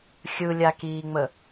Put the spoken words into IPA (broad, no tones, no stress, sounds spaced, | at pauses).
xʲ ɯ lʲ a k iː ŋ͡m ə